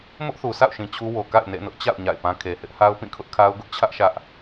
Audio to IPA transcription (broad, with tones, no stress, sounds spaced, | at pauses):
m ʊ˦ ʔ θ u˨ sʰ a̰˦˨ ʊ̯ ʃ ĩ˨ t͡ɕʰ u˦ w o˨ k a̰˦˨ ɪ̯ n ḛ˦˨ n ʊ˦ ʔ t͡ɕ a̰˦˨ ʊ̯ ɲ a̰˦˨ ɪ̯ p ã˦ kʰ e˨ h ɪ˦ ʔ h a˦ ʊ̯ p ĩ˦˨ kʰ ʊ˦ ʔ kʰ a˦ ʊ̯ ɡ ʊ˦ ʔ t͡ɕʰ ä˦ ʔ ʃ ä˦ ʔ